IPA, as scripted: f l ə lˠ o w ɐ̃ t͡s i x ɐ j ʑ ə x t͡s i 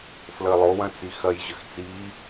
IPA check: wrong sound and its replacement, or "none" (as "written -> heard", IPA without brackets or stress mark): none